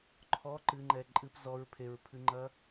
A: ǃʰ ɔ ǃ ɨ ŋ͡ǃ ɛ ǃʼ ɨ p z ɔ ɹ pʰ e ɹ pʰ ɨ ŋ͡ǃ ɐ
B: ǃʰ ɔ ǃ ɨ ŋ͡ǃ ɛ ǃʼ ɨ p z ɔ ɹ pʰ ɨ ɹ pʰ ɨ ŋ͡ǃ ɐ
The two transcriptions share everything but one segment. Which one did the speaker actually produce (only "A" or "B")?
A